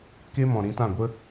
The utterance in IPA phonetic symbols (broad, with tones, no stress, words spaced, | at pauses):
ke˦mɔ̃˨ ɾĩ˨˦tã˦˨ɡʷə˦